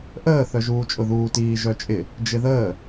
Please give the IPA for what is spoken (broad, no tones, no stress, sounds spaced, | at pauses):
ʔ əː θ œ ʒ uː t͡ʃʼ ʊ ð uː t iː ʒ œ t͡ʃʼ ɪ | d͡ʒ ɪ ð əː